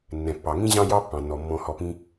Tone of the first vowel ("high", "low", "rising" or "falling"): low